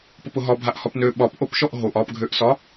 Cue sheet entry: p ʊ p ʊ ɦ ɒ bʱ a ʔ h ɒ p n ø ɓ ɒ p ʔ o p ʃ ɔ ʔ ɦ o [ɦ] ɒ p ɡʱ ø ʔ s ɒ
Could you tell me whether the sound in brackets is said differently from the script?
yes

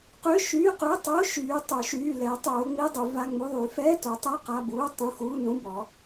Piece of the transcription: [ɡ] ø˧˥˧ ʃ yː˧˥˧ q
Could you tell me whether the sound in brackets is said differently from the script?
yes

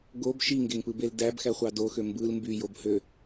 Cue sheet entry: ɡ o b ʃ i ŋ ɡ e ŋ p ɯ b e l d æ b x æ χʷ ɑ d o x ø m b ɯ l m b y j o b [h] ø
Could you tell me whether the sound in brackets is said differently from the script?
no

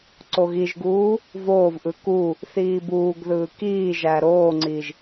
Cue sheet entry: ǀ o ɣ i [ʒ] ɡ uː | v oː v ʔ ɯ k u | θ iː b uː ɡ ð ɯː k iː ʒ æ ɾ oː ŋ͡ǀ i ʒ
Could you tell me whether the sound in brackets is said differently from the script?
no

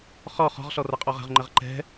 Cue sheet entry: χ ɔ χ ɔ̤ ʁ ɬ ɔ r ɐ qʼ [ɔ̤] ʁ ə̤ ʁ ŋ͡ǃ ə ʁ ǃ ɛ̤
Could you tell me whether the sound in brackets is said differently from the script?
yes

